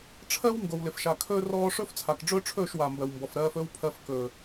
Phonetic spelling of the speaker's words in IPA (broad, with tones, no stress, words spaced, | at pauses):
ʈ͡ʂʰɜ˦w ŋɡo˨wlɪ˨fʃa˨kʰɵː˦ rɔː˦ ʂɵ˦ft͡sʰa˨kɖ͡ʐɵː˦ʈ͡ʂʰɵː˦˨ʃ wa˨mbɜ˨wmbɔ˨f ɾɜː˧fɵ˦wpʰɜ˧f kɵː˨